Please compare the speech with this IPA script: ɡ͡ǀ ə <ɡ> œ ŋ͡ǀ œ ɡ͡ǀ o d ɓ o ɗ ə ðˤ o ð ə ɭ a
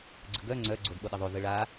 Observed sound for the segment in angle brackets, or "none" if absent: ɡ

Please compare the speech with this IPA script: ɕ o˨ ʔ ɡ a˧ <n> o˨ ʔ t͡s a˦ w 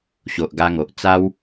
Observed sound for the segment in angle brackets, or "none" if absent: ŋ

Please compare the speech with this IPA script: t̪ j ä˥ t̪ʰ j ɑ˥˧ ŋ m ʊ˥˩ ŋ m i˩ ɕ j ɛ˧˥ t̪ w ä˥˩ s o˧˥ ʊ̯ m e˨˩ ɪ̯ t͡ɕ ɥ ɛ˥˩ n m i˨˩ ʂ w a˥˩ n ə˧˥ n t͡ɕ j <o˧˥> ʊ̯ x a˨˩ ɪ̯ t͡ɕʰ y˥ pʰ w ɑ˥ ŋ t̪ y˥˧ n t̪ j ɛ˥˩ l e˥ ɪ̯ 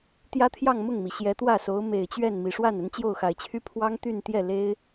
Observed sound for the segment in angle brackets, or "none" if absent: o˥˩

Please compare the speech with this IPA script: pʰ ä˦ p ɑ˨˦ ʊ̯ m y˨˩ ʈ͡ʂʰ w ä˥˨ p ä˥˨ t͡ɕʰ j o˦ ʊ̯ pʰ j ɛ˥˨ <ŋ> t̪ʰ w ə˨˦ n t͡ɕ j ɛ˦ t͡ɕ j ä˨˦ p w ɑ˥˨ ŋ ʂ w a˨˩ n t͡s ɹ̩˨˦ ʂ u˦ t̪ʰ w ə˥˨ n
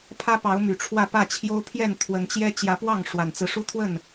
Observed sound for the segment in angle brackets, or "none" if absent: n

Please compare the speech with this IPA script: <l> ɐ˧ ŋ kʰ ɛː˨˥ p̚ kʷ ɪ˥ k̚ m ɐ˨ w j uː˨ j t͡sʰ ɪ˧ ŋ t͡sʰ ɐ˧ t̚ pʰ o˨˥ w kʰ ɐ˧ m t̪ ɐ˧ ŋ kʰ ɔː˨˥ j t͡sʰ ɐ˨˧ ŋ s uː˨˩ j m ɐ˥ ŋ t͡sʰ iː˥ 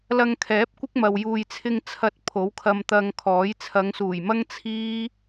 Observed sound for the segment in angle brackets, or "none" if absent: l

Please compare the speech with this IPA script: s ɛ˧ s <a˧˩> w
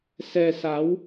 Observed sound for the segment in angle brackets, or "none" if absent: a˨˦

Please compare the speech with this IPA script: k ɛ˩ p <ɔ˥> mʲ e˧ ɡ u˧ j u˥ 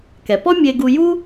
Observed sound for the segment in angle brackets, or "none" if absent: ɔ˥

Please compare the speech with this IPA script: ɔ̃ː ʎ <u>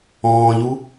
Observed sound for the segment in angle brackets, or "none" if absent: u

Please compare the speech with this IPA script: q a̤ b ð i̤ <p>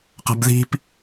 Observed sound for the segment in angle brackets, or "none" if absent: p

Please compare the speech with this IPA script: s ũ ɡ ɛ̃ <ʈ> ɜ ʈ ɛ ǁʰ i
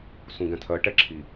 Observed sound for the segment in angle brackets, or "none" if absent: tʰ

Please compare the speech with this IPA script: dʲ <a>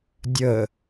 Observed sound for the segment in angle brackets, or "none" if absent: ə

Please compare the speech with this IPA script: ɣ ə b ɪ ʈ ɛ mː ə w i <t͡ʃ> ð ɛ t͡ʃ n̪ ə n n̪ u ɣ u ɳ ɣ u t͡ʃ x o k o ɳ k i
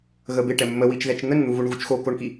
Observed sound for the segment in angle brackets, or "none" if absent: t͡ʃ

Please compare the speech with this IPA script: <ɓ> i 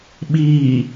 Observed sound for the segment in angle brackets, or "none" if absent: ɓ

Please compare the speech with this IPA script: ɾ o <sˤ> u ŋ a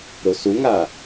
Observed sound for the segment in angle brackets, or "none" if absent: s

